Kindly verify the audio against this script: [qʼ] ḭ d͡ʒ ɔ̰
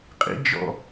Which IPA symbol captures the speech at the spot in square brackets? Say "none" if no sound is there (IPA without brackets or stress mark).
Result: qʼ